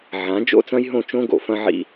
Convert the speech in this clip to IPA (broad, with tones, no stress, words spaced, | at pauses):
ʕã˨˦ d͡ʒo̰˦t͡sɐ̃˦jɦõ˦˨t͡ʃõ˦ ɡo̰˨fɐ̃˦ʕḭ˦